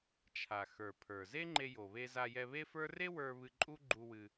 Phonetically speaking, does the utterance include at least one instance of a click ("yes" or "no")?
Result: yes